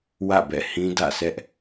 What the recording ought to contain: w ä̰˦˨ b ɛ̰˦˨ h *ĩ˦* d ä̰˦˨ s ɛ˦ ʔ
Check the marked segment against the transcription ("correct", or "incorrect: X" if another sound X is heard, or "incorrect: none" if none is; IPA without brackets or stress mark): correct